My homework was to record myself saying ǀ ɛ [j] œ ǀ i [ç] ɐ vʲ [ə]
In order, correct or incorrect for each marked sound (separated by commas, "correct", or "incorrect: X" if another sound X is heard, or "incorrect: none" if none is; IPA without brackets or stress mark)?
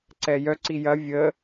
correct, incorrect: j, correct